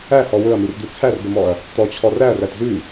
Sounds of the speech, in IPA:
æhɔ wɵɐ̯mird̪ʉ t͡sʰærɡəmɔɐ̯ | t̪ɔt͡ɕʰɔ ræɐ̯ræt zʉ

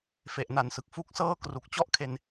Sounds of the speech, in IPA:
fe˨˩ʔna˨˩nsɯ˨˩k̚ fu˥˩k̚sɤː˥˩ kru˨˩k̚t͡ɕɔ˥˩ʔkʰe˧n

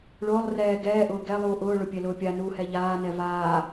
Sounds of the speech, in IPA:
ɭʊːlˠ rɛː ɡɛːʔʊː ɡɛlˠuː ʔʊːɭʊpʲɛlʊː pʲanuːhɛ ʎaːnɛ vaː

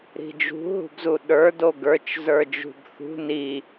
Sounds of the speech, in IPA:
ɾi̤d͡ʒṳ ɦṳbzuɗə˞ doɡə˞t͡ʃ zə˞d͡ʒṳbθṳ ni

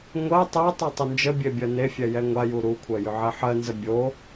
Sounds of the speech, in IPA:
ŋʷɜ tˤɜtˤu tˤʏnd͡ʒəbʲe bʲɜnefʲɛ jɛŋʷaju ɾukʷʰɜ jʏʕɛħɜnzə bʲo

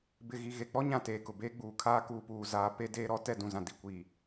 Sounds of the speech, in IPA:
bɪ˨ɣi˨ ɣe˨k͡pɔ˦ɲã˨ teː˨kʊ˨beː˦ɡ͡buː˨ kʰaː˦kuː˨puː˨ zaː˨pe˦ deː˦ɾɔ˦ tɛ˦˨dũ˨zã˨ di˨kʷiː˨

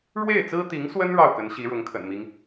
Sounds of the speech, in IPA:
ɻwe˥˩ɪ̯t͡sɹ̩˥t̪i˧˥ŋswə˥n ɻɑ˥˩ʊ̯kə˧˥n ɕi˧˥ɻʊ˧˥ŋkʰə̰˨˩nmi˦ŋ

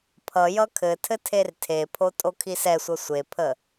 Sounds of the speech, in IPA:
pʰʌ jʌkʰɘtʰɘ tʰertʰepʰo tʼokʰisɛsʷʌ sʷepʰə

